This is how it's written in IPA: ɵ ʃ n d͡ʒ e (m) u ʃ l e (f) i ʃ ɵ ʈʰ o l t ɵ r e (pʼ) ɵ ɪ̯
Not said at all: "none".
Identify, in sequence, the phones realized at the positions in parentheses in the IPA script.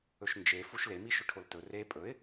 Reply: f, m, pʼ

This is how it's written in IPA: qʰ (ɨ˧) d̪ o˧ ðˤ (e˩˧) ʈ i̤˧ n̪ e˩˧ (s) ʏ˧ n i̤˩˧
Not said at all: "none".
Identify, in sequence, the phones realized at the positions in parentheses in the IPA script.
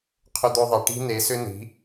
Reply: ʏ˧, e˩˧, s

